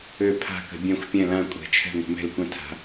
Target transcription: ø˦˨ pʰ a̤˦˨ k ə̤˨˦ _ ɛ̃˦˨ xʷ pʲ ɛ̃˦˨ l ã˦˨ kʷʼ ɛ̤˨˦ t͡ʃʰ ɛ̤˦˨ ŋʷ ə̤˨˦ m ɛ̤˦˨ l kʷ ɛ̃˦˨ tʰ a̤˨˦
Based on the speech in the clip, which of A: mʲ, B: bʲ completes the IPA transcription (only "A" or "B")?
B